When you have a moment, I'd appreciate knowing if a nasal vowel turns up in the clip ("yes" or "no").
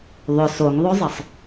no